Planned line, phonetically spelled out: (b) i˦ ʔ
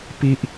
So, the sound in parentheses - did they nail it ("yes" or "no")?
no